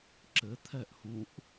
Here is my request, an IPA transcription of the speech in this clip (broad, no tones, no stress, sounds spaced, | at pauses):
ǁ ɘ t̪ʰ ɛ ʔ h ũ ʔ